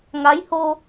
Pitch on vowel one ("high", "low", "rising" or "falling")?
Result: rising